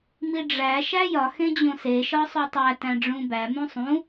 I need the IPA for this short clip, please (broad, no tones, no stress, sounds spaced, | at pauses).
m i ɖ͡ʐ æ ʃ æ j ɒ x ẽ d͡ʑ õ s e ʃ ɒ sˤ u tˤ æ t æ̃ ɖ͡ʐ ũ b æ m ũ sˤ ũ